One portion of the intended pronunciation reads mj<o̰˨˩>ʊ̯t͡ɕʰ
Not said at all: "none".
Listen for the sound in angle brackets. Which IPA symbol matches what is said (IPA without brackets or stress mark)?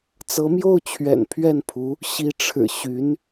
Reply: o˥˩